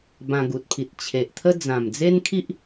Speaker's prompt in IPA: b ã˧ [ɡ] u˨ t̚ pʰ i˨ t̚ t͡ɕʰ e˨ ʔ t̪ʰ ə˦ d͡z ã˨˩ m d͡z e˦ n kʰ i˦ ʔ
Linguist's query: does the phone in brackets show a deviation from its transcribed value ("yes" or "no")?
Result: no